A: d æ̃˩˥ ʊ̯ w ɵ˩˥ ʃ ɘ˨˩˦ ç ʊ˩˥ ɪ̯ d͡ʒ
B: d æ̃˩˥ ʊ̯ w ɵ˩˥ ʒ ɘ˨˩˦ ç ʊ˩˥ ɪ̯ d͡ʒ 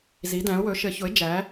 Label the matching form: A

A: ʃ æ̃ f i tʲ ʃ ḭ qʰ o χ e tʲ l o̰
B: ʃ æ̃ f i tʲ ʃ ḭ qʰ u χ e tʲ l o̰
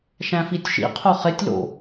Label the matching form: A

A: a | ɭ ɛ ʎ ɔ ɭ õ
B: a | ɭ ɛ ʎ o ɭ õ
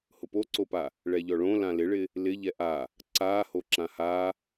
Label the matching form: A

